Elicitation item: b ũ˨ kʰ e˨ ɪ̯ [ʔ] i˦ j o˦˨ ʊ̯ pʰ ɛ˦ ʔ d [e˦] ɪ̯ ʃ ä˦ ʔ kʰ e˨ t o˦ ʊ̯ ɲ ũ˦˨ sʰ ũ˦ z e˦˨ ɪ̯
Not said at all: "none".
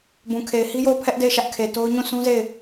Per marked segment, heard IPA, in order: h, e˦˨

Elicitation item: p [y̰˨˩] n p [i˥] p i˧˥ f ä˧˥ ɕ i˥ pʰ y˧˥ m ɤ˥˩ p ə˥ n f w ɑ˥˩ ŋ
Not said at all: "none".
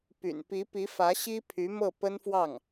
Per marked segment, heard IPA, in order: y̰˨˩, i˧˥

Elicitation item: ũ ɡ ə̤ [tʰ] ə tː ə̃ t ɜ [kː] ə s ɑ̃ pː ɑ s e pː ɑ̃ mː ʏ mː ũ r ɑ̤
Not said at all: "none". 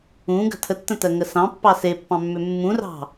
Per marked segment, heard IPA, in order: tʰ, ŋ

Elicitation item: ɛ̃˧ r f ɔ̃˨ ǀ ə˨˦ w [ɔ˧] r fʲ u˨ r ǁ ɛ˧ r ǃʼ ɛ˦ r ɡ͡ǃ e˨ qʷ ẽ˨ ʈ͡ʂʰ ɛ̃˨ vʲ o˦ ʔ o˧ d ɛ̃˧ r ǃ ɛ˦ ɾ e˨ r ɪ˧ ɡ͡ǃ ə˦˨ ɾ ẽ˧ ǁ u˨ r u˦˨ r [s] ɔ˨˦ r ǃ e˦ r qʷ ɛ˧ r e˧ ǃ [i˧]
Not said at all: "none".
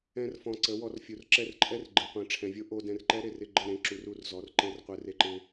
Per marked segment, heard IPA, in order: ɔ˧, z, ɪ˧

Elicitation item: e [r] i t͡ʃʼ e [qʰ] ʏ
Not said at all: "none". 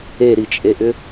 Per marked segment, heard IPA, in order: ɾ, ʔ

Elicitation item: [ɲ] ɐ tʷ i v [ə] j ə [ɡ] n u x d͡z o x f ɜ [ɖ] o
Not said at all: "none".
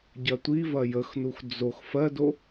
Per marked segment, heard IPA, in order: ɟ, ɐ, x, d

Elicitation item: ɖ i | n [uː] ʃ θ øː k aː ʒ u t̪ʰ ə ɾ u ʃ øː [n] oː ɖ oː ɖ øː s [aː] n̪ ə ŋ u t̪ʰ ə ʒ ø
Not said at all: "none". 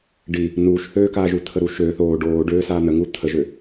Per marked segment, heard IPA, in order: uː, θ, aː

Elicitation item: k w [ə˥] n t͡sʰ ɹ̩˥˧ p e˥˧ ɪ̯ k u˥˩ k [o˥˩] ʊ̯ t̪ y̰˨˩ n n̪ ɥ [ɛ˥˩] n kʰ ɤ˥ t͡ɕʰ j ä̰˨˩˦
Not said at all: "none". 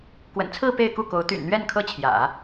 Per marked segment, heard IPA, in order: ə̰˨˩, o˧˥, ɛ˥˩

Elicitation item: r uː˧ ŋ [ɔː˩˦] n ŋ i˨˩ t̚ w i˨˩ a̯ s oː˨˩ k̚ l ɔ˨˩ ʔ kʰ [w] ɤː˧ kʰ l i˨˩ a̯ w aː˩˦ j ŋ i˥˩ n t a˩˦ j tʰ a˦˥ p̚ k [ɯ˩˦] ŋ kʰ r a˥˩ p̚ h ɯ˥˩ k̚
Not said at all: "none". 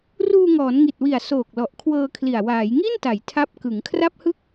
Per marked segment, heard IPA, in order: ɔː˩˦, w, ɯ˩˦

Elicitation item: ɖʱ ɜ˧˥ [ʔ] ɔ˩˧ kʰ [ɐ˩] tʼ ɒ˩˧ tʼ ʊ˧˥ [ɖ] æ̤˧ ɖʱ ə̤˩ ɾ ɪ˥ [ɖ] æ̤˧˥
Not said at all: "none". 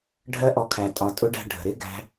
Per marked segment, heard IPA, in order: ʔ, æ˩, ɖ, ɡ

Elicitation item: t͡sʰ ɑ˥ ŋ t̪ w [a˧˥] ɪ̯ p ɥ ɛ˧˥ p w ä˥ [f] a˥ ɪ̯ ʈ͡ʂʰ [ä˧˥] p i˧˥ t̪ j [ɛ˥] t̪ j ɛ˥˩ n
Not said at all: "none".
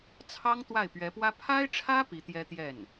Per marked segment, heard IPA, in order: a˥˩, pʰ, ä˥, ɛ˥

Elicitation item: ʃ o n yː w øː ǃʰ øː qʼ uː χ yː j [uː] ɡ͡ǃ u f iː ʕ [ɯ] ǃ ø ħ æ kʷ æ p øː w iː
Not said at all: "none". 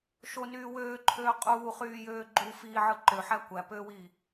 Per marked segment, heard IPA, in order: øː, ɯ

